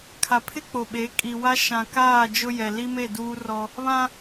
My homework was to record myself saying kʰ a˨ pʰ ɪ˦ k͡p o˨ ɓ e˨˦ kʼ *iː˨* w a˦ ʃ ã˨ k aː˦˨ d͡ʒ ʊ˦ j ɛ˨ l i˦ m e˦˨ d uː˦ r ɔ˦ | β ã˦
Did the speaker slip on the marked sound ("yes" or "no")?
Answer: yes